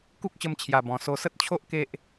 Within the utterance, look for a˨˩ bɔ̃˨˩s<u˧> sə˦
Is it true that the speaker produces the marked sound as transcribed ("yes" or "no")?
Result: no